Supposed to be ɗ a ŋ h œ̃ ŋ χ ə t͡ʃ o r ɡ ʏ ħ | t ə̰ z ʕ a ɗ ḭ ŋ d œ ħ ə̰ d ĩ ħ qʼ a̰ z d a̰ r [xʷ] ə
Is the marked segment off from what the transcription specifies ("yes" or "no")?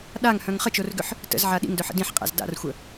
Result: no